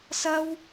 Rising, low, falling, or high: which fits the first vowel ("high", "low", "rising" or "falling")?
high